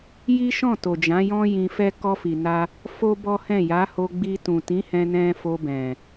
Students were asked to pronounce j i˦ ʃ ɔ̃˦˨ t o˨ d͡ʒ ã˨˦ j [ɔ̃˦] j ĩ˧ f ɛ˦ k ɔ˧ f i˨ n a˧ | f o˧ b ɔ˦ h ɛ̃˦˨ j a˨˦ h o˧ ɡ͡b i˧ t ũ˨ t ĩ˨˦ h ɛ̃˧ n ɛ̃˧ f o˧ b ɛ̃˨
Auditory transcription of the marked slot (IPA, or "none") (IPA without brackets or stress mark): ɔ̃˦